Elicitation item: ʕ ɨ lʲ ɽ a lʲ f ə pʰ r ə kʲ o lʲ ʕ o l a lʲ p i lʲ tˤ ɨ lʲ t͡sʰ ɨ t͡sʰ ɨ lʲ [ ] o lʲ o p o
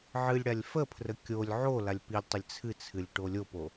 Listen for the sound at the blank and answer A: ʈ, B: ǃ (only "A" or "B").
A